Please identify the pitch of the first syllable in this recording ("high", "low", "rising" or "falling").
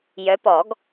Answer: rising